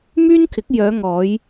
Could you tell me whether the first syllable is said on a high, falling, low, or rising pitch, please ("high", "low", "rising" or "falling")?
high